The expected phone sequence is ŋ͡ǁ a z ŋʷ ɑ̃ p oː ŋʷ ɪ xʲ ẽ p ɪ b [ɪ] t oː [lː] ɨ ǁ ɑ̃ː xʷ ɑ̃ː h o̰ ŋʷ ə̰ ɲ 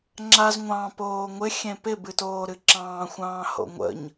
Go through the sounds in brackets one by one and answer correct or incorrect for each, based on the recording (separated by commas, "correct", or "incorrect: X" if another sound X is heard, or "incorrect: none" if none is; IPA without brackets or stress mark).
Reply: incorrect: ɨ, incorrect: ɾ